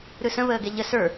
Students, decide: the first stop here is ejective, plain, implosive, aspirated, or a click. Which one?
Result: plain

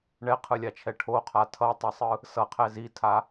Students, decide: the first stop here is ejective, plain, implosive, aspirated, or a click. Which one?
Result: aspirated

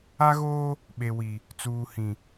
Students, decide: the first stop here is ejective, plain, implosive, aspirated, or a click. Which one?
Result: implosive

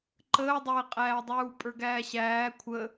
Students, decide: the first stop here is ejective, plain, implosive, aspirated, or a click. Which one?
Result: click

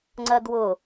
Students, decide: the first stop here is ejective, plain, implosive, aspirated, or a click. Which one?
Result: click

